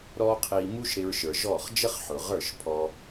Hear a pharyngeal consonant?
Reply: yes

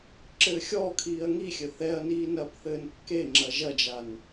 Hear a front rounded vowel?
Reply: no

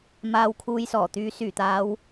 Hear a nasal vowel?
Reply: no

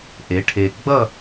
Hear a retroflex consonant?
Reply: yes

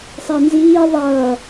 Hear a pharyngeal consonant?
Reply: no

